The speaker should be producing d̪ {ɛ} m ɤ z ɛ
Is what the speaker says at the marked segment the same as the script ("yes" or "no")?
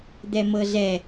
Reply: yes